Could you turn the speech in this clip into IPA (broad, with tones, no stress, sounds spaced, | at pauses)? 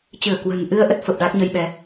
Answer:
t͡ɕ ɨ˧˩ ə̯ k w ə̤˨˩ n ʔ ɨ˧ ə̯ ʔ ə˦˥ t̚ f ə˨˩ p̚ ɗ a˦˥ k̚ ɲ ə˧ j ɓ ɛ˨˦